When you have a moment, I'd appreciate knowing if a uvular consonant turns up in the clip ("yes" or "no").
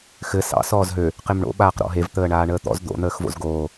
yes